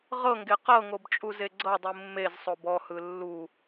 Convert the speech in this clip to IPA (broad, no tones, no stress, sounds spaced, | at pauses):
ʁ ɤ ŋ ɡ e q ɤ ŋ o b t͡ʃʼ u z e ɡ͡ǀ ɤ dˤ ɯ mː e z sˤ o b ɔ h ɯ lː u